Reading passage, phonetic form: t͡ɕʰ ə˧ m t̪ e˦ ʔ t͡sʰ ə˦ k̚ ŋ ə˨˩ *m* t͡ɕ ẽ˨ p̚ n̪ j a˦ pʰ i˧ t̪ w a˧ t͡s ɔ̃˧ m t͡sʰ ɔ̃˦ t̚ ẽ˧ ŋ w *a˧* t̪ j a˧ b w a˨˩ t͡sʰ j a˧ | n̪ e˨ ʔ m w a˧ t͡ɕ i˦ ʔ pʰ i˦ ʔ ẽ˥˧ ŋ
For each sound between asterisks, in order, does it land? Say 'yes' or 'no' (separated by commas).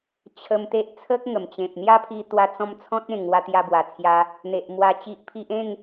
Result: yes, yes